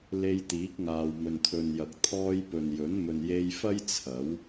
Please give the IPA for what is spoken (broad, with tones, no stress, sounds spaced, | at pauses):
l e˧ j t̪ iː˨˥ k̚ ŋ aː˨ w m ɵ˨ n t̪ʰ ɵ˨ n j ɐ˨ k̚ t̪ʰ ɔː˧ j p ɵ˨ n j ɵ˨˥ n m ɵ˨ n j e˧ j f ɐ˥ j t͡sʰ ɐ˨˥ w